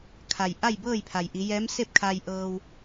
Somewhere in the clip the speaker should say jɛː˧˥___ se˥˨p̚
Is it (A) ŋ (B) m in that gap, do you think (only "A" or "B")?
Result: B